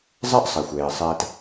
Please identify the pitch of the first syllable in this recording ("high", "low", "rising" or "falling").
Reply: high